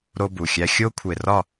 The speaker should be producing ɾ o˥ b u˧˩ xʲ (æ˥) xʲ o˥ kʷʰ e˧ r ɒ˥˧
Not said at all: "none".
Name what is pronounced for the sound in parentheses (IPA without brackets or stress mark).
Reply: æ˥